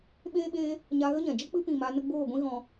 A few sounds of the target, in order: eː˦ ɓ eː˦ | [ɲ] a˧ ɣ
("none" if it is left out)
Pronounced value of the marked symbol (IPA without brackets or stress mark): ɲ